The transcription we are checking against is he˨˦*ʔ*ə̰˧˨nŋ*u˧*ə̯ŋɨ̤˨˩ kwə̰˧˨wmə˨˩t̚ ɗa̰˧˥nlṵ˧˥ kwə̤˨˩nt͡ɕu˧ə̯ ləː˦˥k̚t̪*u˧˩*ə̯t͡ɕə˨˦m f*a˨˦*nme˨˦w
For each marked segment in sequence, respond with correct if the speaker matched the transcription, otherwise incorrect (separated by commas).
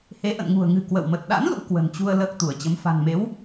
correct, incorrect, correct, incorrect